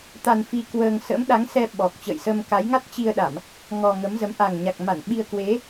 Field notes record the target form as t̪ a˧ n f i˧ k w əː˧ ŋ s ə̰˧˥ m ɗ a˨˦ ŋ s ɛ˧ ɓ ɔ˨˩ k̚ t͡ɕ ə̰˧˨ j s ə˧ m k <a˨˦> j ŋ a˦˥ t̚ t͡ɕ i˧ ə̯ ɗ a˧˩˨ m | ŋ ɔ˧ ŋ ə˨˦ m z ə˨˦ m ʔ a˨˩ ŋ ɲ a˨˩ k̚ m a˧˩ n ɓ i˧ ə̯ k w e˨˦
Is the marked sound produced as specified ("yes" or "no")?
yes